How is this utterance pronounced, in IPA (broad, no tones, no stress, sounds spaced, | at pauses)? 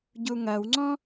ɟ u ŋ ɐ w ŋ͡ǀ ɔ̃